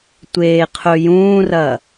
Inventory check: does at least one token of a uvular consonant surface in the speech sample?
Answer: yes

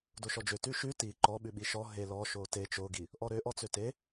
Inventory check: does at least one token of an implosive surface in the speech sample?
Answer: yes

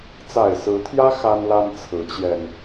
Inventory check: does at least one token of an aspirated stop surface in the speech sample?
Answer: yes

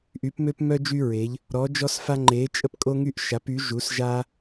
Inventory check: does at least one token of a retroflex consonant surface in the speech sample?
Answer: no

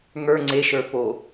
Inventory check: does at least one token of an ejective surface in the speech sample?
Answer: no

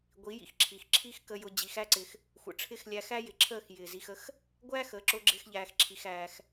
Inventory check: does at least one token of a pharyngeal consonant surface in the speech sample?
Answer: no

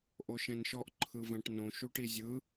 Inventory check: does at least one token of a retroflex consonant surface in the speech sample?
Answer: yes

